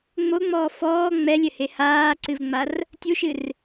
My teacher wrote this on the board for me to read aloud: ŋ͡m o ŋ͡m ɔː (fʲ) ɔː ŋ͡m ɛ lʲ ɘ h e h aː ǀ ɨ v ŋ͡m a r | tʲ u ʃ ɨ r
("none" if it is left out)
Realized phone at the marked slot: f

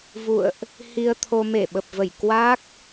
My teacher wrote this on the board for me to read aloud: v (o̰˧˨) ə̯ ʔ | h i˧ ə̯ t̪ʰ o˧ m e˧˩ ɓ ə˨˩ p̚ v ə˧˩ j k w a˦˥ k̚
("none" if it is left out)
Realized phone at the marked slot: ṵ˧˨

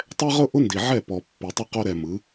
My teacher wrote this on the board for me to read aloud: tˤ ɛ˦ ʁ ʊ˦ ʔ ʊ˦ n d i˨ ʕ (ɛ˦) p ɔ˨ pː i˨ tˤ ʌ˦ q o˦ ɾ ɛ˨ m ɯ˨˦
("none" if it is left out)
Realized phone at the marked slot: ɛ˦˨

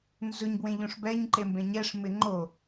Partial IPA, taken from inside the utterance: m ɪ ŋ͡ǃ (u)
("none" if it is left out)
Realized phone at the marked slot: o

